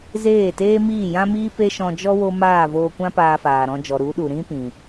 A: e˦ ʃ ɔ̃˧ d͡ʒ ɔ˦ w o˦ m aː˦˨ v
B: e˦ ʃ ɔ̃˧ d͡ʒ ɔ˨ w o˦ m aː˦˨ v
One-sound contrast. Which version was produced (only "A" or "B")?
A